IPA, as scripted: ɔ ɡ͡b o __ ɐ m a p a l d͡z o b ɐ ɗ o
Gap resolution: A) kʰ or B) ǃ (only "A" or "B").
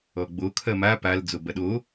A